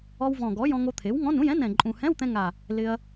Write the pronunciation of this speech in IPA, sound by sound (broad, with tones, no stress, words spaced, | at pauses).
ɔ˧wvɔ̃˨˩ɡɔ˩˥ jɔ̃˧ŋo˧t̪ʰe˩˥wŋɔ̃˧˥˧n ũ˧˥˧jɛ̃˧˥˧n ɛ̃˨˩ ǃʼũ˨˩hɛ̃˧˥˧wt̪ɛ̃˧ŋa˨˩ | lɪ˧ɐ̯